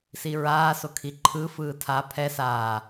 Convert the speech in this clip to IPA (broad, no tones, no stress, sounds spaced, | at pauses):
s i ɹ aː s o kʰ i ǃʰ ɯ f ɯː tʰ a pʰ ɛ s aː